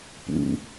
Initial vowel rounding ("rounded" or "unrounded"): rounded